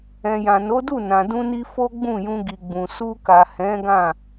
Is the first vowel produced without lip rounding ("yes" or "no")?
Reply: yes